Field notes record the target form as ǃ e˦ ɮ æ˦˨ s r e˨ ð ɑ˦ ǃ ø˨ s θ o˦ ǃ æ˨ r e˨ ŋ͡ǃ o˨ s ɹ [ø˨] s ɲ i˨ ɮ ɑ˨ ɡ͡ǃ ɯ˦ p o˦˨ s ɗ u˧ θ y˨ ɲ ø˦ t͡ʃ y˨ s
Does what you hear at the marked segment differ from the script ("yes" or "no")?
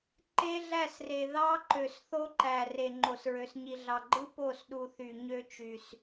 no